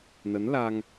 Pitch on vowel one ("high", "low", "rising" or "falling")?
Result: rising